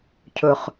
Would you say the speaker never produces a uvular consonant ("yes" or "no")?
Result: no